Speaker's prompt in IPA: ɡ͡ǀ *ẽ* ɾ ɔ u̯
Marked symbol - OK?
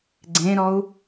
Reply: yes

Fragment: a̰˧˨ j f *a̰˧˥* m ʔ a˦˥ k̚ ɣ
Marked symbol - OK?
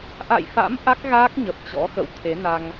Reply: yes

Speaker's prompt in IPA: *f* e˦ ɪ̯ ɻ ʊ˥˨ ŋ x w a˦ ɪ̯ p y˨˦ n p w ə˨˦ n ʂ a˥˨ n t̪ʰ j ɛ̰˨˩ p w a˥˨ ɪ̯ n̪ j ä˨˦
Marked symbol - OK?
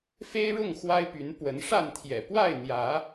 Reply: yes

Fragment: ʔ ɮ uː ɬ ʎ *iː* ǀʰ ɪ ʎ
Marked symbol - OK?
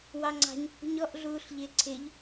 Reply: no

